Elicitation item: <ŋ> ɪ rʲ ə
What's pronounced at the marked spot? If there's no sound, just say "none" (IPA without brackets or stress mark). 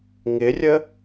ŋ